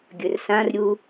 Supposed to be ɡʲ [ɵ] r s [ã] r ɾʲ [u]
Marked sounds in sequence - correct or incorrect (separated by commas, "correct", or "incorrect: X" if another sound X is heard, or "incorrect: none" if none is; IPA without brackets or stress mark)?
correct, correct, correct